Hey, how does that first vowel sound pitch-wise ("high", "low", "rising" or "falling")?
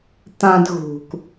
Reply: low